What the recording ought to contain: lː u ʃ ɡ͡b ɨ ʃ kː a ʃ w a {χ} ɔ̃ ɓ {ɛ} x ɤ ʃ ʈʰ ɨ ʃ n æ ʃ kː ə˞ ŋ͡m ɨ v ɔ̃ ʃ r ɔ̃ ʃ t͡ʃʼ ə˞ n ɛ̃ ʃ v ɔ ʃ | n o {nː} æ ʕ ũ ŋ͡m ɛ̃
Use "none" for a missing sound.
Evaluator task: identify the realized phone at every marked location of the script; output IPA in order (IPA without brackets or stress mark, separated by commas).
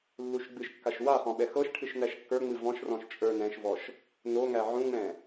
χ, ɛ, ŋ